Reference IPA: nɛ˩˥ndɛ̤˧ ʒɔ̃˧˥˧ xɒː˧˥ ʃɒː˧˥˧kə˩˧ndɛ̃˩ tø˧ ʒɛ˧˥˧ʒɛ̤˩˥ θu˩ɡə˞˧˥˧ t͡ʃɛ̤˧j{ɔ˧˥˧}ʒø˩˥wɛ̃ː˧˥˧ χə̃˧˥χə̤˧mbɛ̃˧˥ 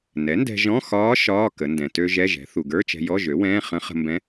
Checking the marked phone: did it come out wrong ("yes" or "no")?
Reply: no